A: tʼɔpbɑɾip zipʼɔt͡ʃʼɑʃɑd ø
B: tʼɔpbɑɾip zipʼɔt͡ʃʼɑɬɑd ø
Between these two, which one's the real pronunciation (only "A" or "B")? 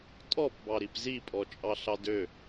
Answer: B